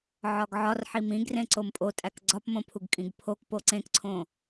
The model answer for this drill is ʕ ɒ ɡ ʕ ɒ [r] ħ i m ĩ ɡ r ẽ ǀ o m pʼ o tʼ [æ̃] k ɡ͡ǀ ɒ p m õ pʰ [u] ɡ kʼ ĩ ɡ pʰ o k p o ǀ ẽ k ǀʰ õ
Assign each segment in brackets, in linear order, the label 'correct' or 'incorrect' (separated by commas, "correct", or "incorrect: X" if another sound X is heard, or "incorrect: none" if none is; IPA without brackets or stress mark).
correct, incorrect: æ, correct